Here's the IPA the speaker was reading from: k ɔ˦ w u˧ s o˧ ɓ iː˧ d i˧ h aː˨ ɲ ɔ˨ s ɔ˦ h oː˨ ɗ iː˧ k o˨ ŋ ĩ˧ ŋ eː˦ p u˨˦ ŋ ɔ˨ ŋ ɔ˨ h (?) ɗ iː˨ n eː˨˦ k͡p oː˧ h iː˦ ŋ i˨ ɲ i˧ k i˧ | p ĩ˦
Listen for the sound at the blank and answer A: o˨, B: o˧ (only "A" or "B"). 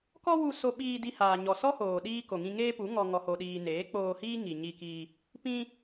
A